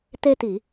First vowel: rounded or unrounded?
unrounded